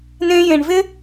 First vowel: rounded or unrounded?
unrounded